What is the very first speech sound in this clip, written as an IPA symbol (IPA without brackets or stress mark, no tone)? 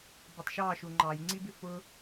b